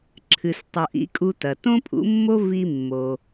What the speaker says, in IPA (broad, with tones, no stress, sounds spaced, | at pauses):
ǁʰ ɨ˩ s tˤ u˩ ʔ ḭ˩˥ kʼ u˧ t ɐ˩ t õ˥ pʼ ṵ˩˥ mː o˥ v i˧ mː o˩